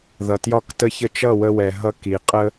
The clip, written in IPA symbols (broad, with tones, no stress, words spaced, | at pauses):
ðʌ˨tjɒ˦ktə˦çə˦ t͡ʃʌ˦˨wə˧wɛ˨ ɦʌ˧ki˨qʼə˦